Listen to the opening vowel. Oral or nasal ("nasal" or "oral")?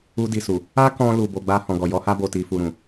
oral